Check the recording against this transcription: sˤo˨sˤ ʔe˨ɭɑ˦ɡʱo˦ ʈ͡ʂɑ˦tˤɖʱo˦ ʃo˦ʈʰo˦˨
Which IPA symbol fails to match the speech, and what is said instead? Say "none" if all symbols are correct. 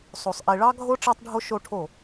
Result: none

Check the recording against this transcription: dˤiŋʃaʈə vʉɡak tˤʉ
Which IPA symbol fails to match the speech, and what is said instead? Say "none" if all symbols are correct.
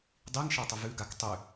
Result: ʈ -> tˤ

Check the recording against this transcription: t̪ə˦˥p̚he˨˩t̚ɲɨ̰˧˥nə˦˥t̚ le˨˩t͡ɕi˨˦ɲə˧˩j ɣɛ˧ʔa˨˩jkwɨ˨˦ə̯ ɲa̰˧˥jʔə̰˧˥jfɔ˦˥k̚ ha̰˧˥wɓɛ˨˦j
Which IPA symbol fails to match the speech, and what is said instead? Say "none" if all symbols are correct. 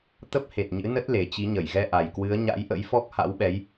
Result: none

